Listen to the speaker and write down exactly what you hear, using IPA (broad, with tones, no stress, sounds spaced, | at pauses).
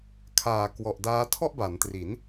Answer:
kʰ aː˨˩ k w ɔ˨˩ ʔ d aː˦˥ tʰ ɔ˥˩ ʔ b a˩˦ n t r i˩˦ n